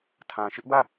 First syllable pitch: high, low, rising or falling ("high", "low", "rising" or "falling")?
low